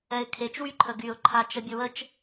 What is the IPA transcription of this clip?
ɛ ɪ̯ kʰ e t͡ʃ w y ǃʰ ə ɡ y ʊ̯ ǃʰ a t͡ʃ ə bʲ ə w ə t͡ʃ

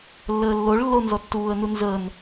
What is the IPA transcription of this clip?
lː əː lː o ɭ lː o n z ɔ tː uː ə̯ n u n z əː n

